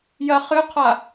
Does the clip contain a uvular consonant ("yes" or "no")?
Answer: yes